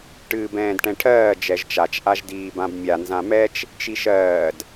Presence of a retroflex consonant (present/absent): present